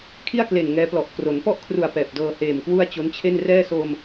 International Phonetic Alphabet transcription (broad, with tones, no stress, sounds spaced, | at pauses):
kʰ i˥˩ a̯ k l e˨˩ n ŋ ɛː˦˥ p l ɔ˨˩ ʔ k r o˩˦ n p ɔ˥˩ ʔ kʰ r u˨˩ a̯ p ɛː˨˩ p̚ d ɤː˧ h eː˨˩ m k w u˥˩ a̯ t͡ɕ o˦˥ n t͡ɕʰ e˥˩ n r ɛː˥˩ s o˧ m